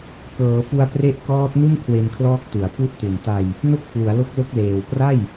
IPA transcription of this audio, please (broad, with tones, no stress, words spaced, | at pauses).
kɤː˩˦fu˧a̯pre˦˥ʔ kɔː˦˥t̚nu˥˩n kʰwe˧nkʰlɔː˦˥k̚tu˩˦a̯ pu˦˥ʔtu˨˩n ta˧j | no˥˩k̚pʰlu˩˦a̯ lo˦˥k̚lo˦˥k̚leː˨˩w pra˥˩j